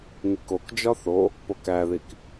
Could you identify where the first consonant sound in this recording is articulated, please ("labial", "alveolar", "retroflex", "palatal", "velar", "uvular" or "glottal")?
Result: velar